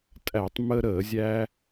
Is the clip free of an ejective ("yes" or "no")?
no